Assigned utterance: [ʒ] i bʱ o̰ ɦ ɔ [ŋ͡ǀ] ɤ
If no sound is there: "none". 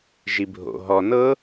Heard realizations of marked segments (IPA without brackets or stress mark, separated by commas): ʒ, n